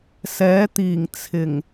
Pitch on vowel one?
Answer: rising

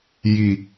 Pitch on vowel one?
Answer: low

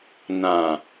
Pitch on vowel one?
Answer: low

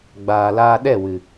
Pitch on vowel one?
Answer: low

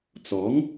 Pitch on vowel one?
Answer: rising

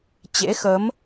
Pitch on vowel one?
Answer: rising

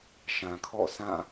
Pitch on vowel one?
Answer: low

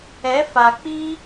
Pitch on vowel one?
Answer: rising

